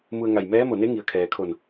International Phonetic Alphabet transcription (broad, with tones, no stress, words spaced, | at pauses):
mu˧ə̯ŋa˧˩j mɛː˧˥mo˧˩ne˧˥ ŋi˩ə̯kʰɛː˩kʰo˧˩n